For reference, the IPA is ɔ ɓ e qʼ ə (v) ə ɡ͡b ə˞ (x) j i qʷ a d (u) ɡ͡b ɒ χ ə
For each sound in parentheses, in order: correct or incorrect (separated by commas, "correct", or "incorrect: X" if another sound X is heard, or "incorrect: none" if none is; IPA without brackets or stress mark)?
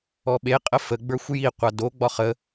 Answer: incorrect: f, incorrect: xʷ, incorrect: o